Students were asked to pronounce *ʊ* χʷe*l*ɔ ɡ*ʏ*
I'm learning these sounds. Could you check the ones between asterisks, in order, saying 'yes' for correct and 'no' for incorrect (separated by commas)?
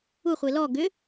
no, yes, yes